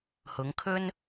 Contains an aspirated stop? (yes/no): yes